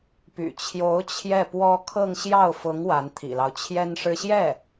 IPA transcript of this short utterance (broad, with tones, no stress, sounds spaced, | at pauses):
p y̰˨˩ t͡ɕʰ j o˧˥ ʊ̯ t͡ɕʰ j ɛ˥˩ p w ɔ˥ kʰ ɤ˥˧ ŋ ɕ j ɑ˥˩ ʊ̯ f ʊ˧˥ ŋ w a˧˥ n t̪ʰ ḭ˨˩ l ɑ˦ ʊ̯ t͡ɕʰ j ɛ˥ n ʂ ɻ̩˥ ɕ j ɛ˥˩